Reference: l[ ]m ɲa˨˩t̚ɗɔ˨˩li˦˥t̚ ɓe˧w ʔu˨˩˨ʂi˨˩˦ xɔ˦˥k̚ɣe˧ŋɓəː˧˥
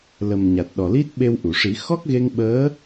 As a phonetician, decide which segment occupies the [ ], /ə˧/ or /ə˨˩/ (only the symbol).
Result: ə˨˩